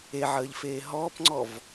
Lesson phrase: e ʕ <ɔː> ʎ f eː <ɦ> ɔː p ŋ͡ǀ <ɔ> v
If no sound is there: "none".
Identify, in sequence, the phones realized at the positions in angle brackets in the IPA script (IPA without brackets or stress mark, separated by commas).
əː, ɦ, ɔ